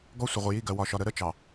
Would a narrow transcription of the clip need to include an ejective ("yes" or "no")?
no